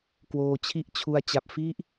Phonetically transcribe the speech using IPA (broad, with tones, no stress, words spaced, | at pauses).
kwoː˧t͡ɕʰi˥˩ʔt͡ɕʰu˧a̯ t͡ɕa˨˩p̚fi˥˩ʔ